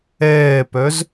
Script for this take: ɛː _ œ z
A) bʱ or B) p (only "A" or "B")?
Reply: B